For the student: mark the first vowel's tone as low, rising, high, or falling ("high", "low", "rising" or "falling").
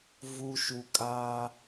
low